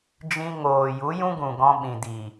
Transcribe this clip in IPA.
d͡ʒ ĩ˧ ŋ oː˨ j u˨˦ j ũ˦ ɡ ũ˨ ɡ ɔ̃˧ ɓ ĩ˨ d i˨

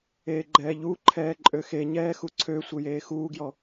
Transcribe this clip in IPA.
eː ɡ͡ǃ ɛː ʎ u ǃʰ ɛː ǃʼ ø x e ɲ ɛː x u ǀʰ ø sʷ ɘ j eː x uː ɡ j ɔ

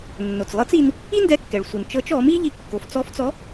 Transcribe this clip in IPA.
nː o˩ t͡s lˠ ɤ˧˥ t͡s i˧ n | i˥ n d ɛ˧ kː ɛ˩ ɭ sʷ ɯ˩ n t͡ʃ ɤ˧˥ t͡ʃ ɔ˩˧ m i˥ ʎ i˧ kː o˩˧ f t͡s ɔ˧˥ f t͡s ɔ˧˥

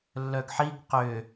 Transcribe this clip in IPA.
lː œ ɡ ħ i ɡ q ʏ

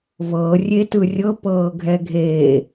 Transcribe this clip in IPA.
v ɤ rʲ e t ɯ rʲ ɤ p ɤː ɡʱ ɛ ɡʱ e

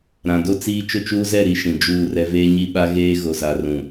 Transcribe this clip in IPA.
ɾ ã˨ d o˦ t͡s iː˦ t͡ʃ ʊ˦ t͡ʃ uː˦ z ɛ˦˨ ɾ i˦ ʃ ĩ˨ d͡ʒ uː˦˨ r ɛ˦ v eː˦ ɲ i˦ ɓ a˦ ɣ eː˦ ɣ o˨ z a˨ r ũ˨

